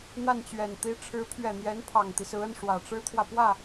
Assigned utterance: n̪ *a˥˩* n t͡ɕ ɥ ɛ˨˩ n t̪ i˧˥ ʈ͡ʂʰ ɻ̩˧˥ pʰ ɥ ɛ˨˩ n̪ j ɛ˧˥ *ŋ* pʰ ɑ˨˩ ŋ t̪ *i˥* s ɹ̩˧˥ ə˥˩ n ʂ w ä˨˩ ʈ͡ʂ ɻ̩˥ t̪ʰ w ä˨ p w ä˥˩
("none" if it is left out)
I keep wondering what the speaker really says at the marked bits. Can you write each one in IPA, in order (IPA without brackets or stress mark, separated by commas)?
a˥˩, n, i˦